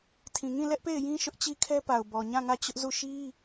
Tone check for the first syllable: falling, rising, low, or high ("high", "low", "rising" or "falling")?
low